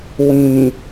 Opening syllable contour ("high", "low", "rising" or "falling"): low